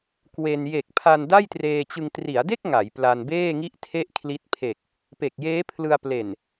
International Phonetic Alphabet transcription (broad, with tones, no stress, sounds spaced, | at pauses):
k w e˧ n j e˨˩ k̚ pʰ a˧ n d a˥˩ j t r eː˧ t͡ɕ ɯ˧ ŋ t r i˩˦ a̯ d e˥˩ k̚ ŋ a˩˦ j p l a˧ n b eː˥˩ ŋ i˥˩ ʔ tʰ e˥˩ ʔ kʰ l i˦˥ t̚ pʰ e˨˩ k̚ | p e˨˩ k̚ j eː˦˥ pʰ l ɯ˧ a̯ p l e˨˩ n